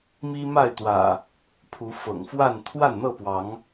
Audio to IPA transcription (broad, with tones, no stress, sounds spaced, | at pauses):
m i˦ m a˥˨ ɪ̯ t̪ w ä̰˨˩ | pʰ u˨˦ f ɤ̰˨˩ ŋ f w a˥˨ n t̪ʰ w a˥˨ n n̪ ɤ˥˨ p w ɑ˨˦ ŋ